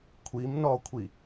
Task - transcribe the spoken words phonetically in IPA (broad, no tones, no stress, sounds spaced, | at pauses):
kʷʰ i m n ɔ kʷʰ i